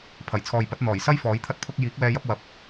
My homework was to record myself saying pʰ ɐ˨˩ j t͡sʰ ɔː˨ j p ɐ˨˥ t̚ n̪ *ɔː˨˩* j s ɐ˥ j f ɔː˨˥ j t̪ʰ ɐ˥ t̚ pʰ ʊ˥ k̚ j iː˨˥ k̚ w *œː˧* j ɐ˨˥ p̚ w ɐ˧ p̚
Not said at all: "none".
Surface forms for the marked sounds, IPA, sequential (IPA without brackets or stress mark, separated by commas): ɔː˨˩, ɛː˧